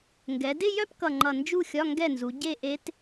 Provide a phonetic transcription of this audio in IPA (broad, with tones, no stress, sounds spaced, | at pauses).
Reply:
ŋ ɡ ɛ˩˧ d ɪ˥˧ j œ˥˧ p k ʌ˨˩ ŋ͡ǃ ʌ˨˩ n d͡ʒ u˥˧ xʲ ɒ˧˥˧ ŋ ɡ ɛ˥˩ n z u˩˧ ɟ e˥˧ ʔ e˦˥ t